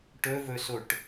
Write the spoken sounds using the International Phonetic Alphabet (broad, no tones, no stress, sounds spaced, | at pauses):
ʈ ɵ v ɵ s o ʈ